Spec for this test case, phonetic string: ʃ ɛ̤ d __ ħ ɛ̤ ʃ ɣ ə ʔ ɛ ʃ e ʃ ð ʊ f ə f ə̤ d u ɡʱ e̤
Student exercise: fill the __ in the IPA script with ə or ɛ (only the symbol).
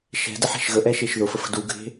ə